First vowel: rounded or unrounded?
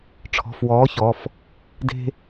rounded